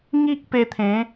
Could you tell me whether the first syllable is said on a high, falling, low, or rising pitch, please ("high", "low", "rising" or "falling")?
high